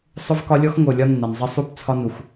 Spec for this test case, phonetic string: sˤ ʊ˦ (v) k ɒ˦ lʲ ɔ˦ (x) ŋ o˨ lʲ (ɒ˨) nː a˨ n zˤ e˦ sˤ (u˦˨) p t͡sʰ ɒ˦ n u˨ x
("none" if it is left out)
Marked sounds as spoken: v, x, ɒ˦, u˦˨

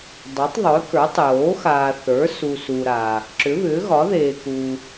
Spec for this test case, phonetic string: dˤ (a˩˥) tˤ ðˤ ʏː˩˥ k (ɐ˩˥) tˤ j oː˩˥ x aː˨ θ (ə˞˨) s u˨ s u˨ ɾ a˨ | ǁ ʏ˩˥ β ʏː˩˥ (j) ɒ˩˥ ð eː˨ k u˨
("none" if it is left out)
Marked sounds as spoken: a˩˥, ə˞˩˥, ə˞˩˥, ɣ

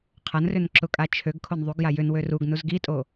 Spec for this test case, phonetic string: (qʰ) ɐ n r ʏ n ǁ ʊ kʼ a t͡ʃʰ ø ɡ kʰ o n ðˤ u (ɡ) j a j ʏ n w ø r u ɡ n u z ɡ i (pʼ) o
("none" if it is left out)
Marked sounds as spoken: qʰ, ɡ, tʼ

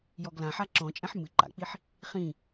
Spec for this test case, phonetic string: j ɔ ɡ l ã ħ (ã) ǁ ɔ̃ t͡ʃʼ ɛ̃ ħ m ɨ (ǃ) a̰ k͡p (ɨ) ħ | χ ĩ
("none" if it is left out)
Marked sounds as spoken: a, ǃ, i

